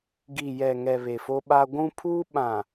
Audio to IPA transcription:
ɡ i˨ j ɛ˨ ŋ ɛ˨ β e˨ f o˦ ɓ a˦ ɡʷ ũ˦ pʰ uː˦ ɓ ã˨

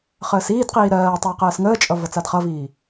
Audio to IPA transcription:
χ əː s iː d q iː ɾ ɜː tˤ əː q ɜː s ŋ əː t͡ʃʼ ʌ v ʌ t͡s a d χ ʌ v iː

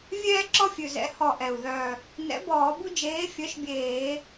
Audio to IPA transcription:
vʲ ɛː˦ ǁ ɔ˦ fʲ ʉ˨˩ z ɛ̰˨˥ h ɔ˨˩ ʔ ɛ˨˩ u̯ ð œ˨˩ | n ɛ̰˨˥ b ɔː˧˩˧ b u˦ d͡ʒ eː˨˥ fʲ œ˨˥ ʃ bʲ eː˧˩˧

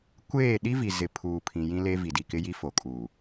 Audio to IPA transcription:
kʷ eː˦˨ ɗ i˦ v i˨ z ɪ˨ pʰ uː˨ pʰ ĩ˨ j ĩ˦ l e˦ v i˨ d i˨ k ɪ˦ j i˦ f o˨ kʼ uː˨

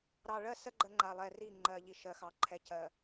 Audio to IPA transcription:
ɾ ɑ˨ ɭ ɜ˦ s ɜ˦ ɡ͡ǃ ə˦ ŋ͡ǃ a˨ lˠ ɛ˨ r i˦˨ ŋ͡ǃ ɜ˨ ʎ i˨ ʃ ɜ˨ x ɑ˨ ǃʰ ɛ˨ c ɜ˨

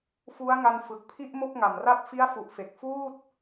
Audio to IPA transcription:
f u˦˥ a̯ ŋ a˧ n f ɯ˨˩ k̚ pʰ i˥˩ ʔ m o˥˩ k̚ ŋ a˨˩ m r a˥˩ p̚ f i˦˥ a̯ f u˨˩ ʔ f e˨˩ k̚ f uː˥˩ t̚

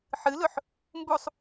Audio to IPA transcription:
ħ ɨ l ɵ ħ | m b u sˤ

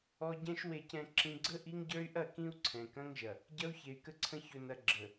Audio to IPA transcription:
ɔ˦ ɟ ɛ̃˦ ʃ w e˨ c ɛ̃˨ ǁ ĩ˨ ɡ͡ǀ ə˦ ʔ i˦ ŋ ɟ ə˞˦ y̯ ʔ ɐ˦˨ k ĩ˦ u̯ ǀʰ ɛ̃˨ k ɐ̃˦ ŋ ʒ ɐ˨ | ɟ ɐ˦ u̯ ç e˨ y̯ k ə˦ ǀʰ ə̃˦ ç ɵ˦ n ɐ˦ ɡ͡ǁ ə˨

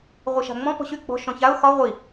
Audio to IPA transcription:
ʁʷ i ʃ a̤ ŋ͡m ɔ̃ p ɔ̤ ɕ y ɡ͡b ɔ̤ ʃ ɔ̃ ç a ʊ̯ x ɒ ʁʷ i

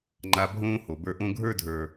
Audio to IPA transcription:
ŋ͡ǃ a˦ bʱ õː˥ h o˨ b ə˞˦ ʔ õ˥ ɡʱ ə˞˦ dʱ ə˞˨

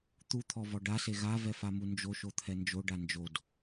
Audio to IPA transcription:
t̪ u t̪ʰ ɔ v ɔ ɖ a s e ɣ a v ɛ f a m u n d͡ʒ o ʃ o t̪ʰ ɛ n d͡ʒ o ɖ a n d͡ʒ o d

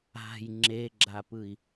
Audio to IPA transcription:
a̤ j ŋ͡ǁ e ɡ͡ǁ a p ɯ i̯

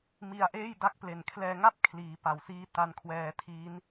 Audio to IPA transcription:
m i˧ a̯ ʔ eː˥˩ j d a˦˥ k̚ p l e˨˩ n kʰ l ɛː˧ ŋ a˥˩ p̚ kʰ l iː˩˦ p a˨˩ w s iː˦˥ t a˧ n kʰ w ɛː˧ tʰ i˦˥ n

